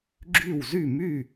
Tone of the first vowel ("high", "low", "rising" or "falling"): falling